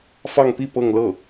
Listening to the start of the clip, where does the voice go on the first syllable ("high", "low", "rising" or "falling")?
falling